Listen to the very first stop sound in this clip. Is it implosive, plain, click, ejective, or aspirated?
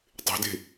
plain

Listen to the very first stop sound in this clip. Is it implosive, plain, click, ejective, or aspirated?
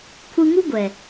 aspirated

